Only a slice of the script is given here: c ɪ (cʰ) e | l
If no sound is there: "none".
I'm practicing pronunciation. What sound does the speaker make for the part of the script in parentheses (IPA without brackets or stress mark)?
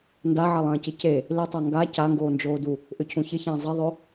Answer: c